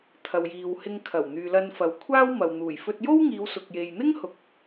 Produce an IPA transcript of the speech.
t̪ʰ ɐ˨ w j iː˨ w h ɪ˧ ŋ kʰ ɐ˨˩ w n̪ yː˨ l ɐ˧ n f ɐ˨ w kʷʰ aː˥ w m ɐ˨ w n̪ uː˨˩ j f ɵ˧ t̚ j o˥ w ŋ iː˨˧ w s ʊ˨ k̚ j e˨ j n̪ ɪ˥ ŋ h ʊ˨ k̚

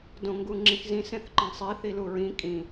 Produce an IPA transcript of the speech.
d õ ŋ ɡ u ŋ͡ǁ ĩ x z ĩ s ẽ θ ǃ ẽ sˤ i θ i l u ɹ ĩ kʼ ĩ

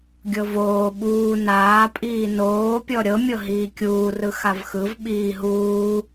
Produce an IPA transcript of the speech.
ɡʲ ɤ v oː ɓ uː n aː pʼ iː n oː pʲ ɔ ɾʲ ɤ mʲ ɤ ɦ iː kʲ uː r ɯ x a v x ɯ v ɓ iː ɦ uː

